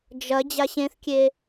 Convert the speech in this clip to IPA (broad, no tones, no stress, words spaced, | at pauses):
d͡ʒɐ d͡ʑaɕẽθkʲe